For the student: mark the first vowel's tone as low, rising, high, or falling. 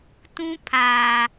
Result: high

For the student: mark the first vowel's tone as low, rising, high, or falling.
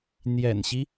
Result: low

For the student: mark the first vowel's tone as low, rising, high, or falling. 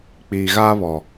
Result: low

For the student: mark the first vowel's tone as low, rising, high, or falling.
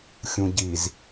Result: low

